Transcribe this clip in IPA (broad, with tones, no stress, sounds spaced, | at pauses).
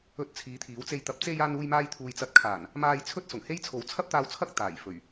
ɵ˧ t̚ t͡sʰ iː˨˧ t̪ʰ iː˨˥ w t͡s e˧ j t̪ ɐ˨ p̚ t͡s e˧ j aː˧ n uː˧ j m aː˧ j t̪ʰ uː˨ j t͡s ɐ˨˥ t̚ kʰ aː˨˩ n | m aː˧ j t͡sʰ ɵ˥ t̚ s ʊ˨˩ ŋ h e˥ j t͡sʰ o˨˥ w t͡sʰ ɐ˥ p̚ t̪ aː˧ w t͡sʰ ɐ˥ k̚ t̪ aː˨˩ j f ɵ˨˩ ɥ